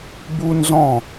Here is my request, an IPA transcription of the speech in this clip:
b u˦ n z ɔ̃˦˨

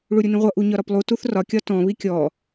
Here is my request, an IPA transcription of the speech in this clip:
ɭ u ɾʲ u n ĩ ʁʷ ʌ ʔ u ɲ ɒ ɾ ɒ p lˠ u t u θ r ɒ kʲ ɒ t ɔ̃ β i kʲ ɔ

